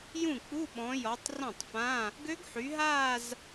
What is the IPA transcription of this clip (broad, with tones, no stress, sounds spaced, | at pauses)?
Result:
j ũ˥˩ k͡p u˧˥˧ ɓ ɔ̃˨˦ j ɔ˨˦ tˤ r ɔ̃˥˩ tˤ f ã˧˥˧ | ɡ ø˦˥ ɡ ħ y˨˦ ɦ aː˥˧ z